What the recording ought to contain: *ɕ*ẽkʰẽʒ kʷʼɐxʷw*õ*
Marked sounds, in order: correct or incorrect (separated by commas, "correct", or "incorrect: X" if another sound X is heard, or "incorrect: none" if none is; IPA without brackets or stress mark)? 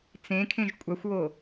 incorrect: t͡s, incorrect: o